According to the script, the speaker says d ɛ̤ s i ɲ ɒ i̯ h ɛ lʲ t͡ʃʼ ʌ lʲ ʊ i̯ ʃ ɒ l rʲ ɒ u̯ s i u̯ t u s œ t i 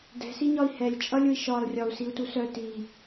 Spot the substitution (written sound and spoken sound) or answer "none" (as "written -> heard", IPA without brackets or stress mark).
none